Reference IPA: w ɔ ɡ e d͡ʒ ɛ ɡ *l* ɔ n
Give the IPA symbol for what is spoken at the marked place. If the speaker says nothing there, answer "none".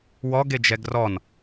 r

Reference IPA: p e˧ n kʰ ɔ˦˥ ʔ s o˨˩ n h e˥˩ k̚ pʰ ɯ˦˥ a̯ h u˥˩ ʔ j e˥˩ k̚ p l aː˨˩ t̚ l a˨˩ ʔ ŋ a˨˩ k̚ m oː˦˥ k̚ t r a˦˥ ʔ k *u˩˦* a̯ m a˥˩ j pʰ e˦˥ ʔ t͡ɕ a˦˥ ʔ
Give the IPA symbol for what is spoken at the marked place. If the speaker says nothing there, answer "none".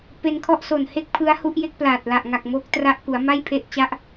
u˩˦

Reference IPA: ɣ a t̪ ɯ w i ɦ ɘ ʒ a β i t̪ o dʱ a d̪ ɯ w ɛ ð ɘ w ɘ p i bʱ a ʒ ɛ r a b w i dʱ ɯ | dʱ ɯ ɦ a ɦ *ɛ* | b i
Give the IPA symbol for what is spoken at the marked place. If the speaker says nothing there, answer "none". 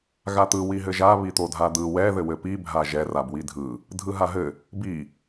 ɘ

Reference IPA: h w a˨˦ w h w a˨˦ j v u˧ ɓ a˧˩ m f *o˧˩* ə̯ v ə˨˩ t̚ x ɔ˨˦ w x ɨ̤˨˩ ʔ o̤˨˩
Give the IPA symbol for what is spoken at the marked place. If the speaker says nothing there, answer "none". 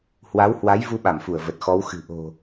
u˧˩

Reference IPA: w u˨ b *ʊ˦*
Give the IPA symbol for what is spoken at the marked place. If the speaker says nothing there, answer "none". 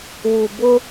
ʊ˦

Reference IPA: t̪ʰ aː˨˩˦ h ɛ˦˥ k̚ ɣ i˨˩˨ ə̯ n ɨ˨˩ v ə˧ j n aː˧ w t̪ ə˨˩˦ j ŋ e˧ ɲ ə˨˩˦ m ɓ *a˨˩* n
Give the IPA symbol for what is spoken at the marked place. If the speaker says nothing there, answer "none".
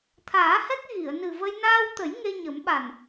a˨˩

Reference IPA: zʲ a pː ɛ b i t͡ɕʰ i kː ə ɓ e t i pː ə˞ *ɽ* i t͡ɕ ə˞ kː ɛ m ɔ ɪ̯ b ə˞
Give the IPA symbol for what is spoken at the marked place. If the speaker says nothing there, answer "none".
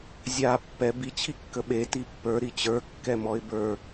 ɾ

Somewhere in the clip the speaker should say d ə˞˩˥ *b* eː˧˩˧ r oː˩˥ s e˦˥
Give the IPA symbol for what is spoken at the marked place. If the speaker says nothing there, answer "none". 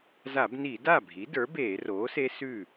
b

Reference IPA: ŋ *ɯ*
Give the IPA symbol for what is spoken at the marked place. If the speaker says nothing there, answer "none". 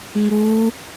u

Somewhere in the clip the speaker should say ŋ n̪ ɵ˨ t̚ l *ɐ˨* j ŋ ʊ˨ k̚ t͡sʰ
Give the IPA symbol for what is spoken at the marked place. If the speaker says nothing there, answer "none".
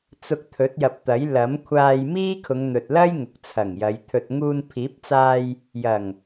ɐ˥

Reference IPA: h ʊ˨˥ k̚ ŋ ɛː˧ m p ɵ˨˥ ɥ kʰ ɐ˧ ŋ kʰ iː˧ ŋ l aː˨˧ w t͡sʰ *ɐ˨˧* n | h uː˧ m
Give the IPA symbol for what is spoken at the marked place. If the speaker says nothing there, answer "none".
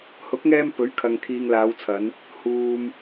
ɐ˨˧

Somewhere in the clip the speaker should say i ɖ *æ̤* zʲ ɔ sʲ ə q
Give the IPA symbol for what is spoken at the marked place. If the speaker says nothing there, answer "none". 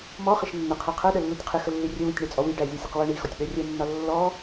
æ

